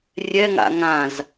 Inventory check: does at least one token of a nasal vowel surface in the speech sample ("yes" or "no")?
yes